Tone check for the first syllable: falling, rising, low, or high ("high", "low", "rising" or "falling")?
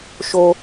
high